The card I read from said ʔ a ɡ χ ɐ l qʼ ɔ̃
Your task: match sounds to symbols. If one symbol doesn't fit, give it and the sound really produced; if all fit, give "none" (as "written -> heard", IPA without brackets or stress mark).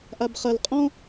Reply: ɡ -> b